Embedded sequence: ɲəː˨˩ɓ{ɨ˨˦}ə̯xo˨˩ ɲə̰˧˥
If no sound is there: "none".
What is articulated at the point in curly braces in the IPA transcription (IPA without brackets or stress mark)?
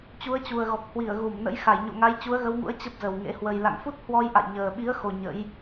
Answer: i˨˦